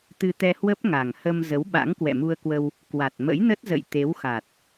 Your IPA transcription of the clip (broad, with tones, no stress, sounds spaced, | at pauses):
t̪ ɨ˧ t̪ ɛ˧ h w ə˦˥ p̚ ŋ a˨˩ ŋ h ə˧ m z ə˨˦ w ɓ a̰˧˥ ŋ k w ɛ̰˧˨ m u˧ ə̯ k w ə˧ w | k w a˨˩ t̚ m ə̰˧˥ j n ə˦˥ t̚ z ə̰˧˨ j t̪ e˨˦ w x a˨˩ t̚